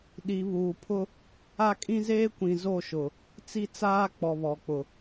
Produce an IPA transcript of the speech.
ɗ i˨ β uː˨ pʰ ʊ˦ | a˦ kʼ ĩ˦ z eː˦ kʷ ĩ˨ z o˦˨ ʃ ʊ˨ | t͡s i˦ t͡s aː˦ k͡p ɔ˨ β ɔ˨ k͡p ʊ˨

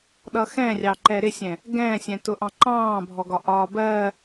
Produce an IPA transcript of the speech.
ɗ ʌ x ɛ̃ rʲ ɑ ǃ ɛ ɾ ɪ sʲ ɛ̃ | ɡ ɛ̃ː sʲ ɛ̃ t ʊ ʔ ɑ̃ ǃ ɑ̃ː bʱ ɔ ɡ ɒ ʔ ɒː b ɜ

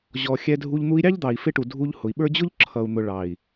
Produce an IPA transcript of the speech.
ʑ ɔ˨ xʲ ɛ˧ dʱ u˧ ʎ n̪ u˧ i̯ ɾʲ ɑ˦ ʎ d̪ ɑ˨ i̯ f ɪ˦ ʈ u˨ dʱ u˧ ʎ h ʊ˨ i̯ ɓ ə˞˦ d͡ʑ ʊ˦ ʎ ǁʰ ʌ˨ u̯ n̪ ʊ˨ ɭ ɑ˨ i̯

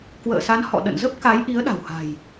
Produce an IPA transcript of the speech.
k w ə̰ː˧˨ s a˨˦ n h ɔ̰˧˨ ɗ ə̰˧˨ n z ə˦˥ p̚ k a˨˦ j ʔ i˨˦ ə̯ ɗ a̤˨˩ w h a̤˨˩ j

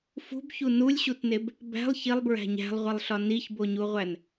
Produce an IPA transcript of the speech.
f ṳ b ç u n u lʲ ɕ u t n e b | b æ̤ lˠ ç i lˠ b ɹ æ̤ ɲ æ̤ lˠ ʁʷ i lˠ ɬ ɒ n i ç b o ɲ u ʁʷ æ n

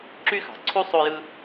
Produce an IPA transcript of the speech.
ǁ y˥ x ɑ̤˨ ǀʰ u˥ sˤ o˦ j ɯ˦

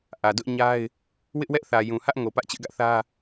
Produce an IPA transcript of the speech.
ʔ ä˨ d ʊ˦ ʔ ɲ a˦ ɪ̯ | w ɪ˦ ʔ w ɛ˦ ʔ θ ä˨ j ũ˨ h ä˦ ʔ ŋ o˨ p ä˦ ʔ t͡ɕ ɪ˦ ʔ ɡ ä˦ ʔ θ ä˦

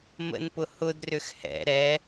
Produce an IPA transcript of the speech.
m ə̰ n p ʊ h ʊ d r ʏ x h ɛ̰ ɾ ɛ

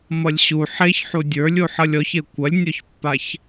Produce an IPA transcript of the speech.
m ʌ lʲ ɕ u ħ e ç ħ u dʲ ə˞ lʲ u ħ ʌ lʲ ɔ ç e kʷ ɐ lʲ nʲ ɔ ç pː a ç

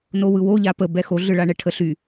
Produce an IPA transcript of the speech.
n o w ɯ w o ʎ a p ə b ɛ x o ɮ ɯ ɭ a ɳ ɛ ʈʰ ə ɬ y

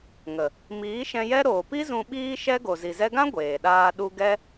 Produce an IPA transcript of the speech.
ŋ ə˨ | m iː˨˦ ʃ ɛ̃˧ j ɛ˦ ɾ oː˨ p i˦ z ũ˧ ɓ iː˦ ʃ ɛ˦ ɡ o˨ z i˨ z ɛ˧ ɡ ã˦ ɡʷ eː˨ ɗ aː˧ ɗ u˧ ɡ ɛ˦

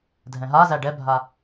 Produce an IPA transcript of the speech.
dʱ ɛ̃ ɦ a z æ ɖ ɛ bʱ a

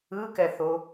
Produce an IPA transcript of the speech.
ɯ k ɛ θ o

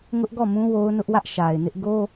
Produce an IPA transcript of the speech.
ŋ ʊ˦ ʔ ɡ ɔ˦˨ m ũ˦ w o˦ ʊ̯ n ʊ˦ ʔ w ä˦ ʔ ʃ a˨ ɪ̯ n ɪ˦ ʔ ɡ o˦

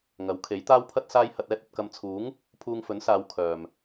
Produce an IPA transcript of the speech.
ŋ ɐ˨˥ w kʰ e˨˥ j t̪ aː˥ w pʰ ɐ˥ t̚ s aː˥ j h ɐ˧ t̚ ɛː˥ t̚ ɐ˧ t̚ k ɐ˧ m t͡sʰ uː˨˥ ŋ | pʰ uː˧ ŋ f ɵ˨˥ n s aː˨˧ w kʰ œː˨ m

